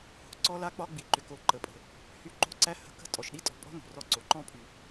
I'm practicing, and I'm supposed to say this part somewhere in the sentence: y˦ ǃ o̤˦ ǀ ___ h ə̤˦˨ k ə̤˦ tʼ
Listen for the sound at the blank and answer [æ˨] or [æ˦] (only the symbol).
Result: æ˦